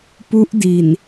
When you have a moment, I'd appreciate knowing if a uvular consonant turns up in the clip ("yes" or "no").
no